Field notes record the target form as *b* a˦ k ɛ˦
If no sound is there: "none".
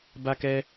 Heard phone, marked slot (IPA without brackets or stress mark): b